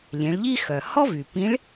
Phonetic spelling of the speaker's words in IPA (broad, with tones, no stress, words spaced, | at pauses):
lʲẽ˩˧ɭʎi˥ xœ˩hɔ˥vy˩ pĩ˧˥ɭ